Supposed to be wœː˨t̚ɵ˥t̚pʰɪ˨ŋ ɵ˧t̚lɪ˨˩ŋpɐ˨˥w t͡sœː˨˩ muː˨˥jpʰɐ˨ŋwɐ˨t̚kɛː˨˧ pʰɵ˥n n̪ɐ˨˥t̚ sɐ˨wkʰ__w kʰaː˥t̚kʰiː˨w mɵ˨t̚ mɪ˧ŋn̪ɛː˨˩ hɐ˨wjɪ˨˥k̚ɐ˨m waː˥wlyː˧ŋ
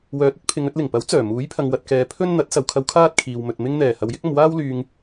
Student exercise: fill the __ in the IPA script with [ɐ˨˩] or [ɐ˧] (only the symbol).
ɐ˧